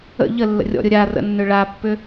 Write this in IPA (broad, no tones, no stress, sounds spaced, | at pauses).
ə̰ ʎ ə lː ə̰ rʲ ɔ̰ ɾʲ ʊ ɾʲ a r ə̰ nː ʏ ɭ a pː ʏ